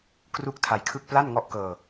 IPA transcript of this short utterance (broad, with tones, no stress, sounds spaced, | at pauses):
k r u˥˩ k̚ tʰ a˧ j kʰ ɯ˥˩ k̚ p l a˥˩ n ŋ ɔ˥˩ ʔ k ɤː˧